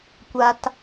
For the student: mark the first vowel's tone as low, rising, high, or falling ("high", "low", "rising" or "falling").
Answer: low